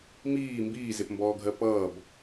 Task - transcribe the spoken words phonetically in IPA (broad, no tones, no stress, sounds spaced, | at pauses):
m iː m b iː z e p m b ɔː ɡʱ ɜ p ʌː b